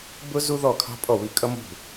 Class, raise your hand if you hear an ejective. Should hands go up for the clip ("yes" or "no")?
yes